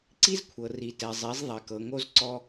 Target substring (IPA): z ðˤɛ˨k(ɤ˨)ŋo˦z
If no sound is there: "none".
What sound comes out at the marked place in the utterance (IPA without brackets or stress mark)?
ɤ˨